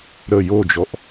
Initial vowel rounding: unrounded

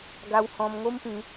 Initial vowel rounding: unrounded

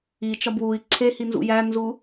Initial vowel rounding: unrounded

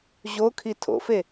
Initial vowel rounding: rounded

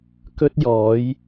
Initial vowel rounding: rounded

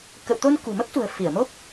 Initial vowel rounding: unrounded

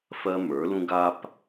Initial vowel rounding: unrounded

